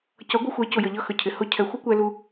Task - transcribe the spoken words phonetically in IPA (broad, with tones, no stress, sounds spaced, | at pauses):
c ʌ˨˦ ɡʷ ə˧ xʷ ɛ˨˦ c ʊ˨ j ə˨ ʎ ʌ˧ x ə˨ cʰ ɪ˨ h ʊ˧ cʰ ɛ˨ xʷ ʌ˦ kʷ ɛ˧ l u˧